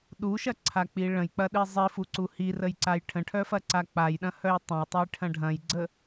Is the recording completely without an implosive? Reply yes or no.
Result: no